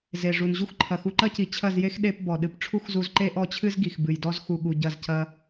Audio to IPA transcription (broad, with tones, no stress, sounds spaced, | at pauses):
z e˨ ʐ u˨ n ʑ u˦ x ǃʰ ɐ˨ x u˧ ǃ ɐ˦ c i˨ t͡ɕʰ ɐ˦˨ z j e˦ x ɗ e˧ p b ɔ˨ ɗ ɨ˧ p ʈ͡ʂʰ u˦ x z u˧ z ǃ e˦ ʔ ɔ˦˨ t͡ɕʰ ɨ˦ z ɡ i˨ x b ɨ˨ j d ɔ˦ z x u˧ ɠ u˧ ɟ ɐ˦˨ z c ɐ˦